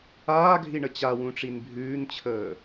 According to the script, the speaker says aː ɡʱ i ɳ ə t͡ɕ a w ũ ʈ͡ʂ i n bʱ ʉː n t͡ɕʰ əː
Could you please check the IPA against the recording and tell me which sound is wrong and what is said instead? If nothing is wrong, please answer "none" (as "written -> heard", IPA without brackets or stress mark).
none